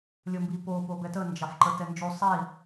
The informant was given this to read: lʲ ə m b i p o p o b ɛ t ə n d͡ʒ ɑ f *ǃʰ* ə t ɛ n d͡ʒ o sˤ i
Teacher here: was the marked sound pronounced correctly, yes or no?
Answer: no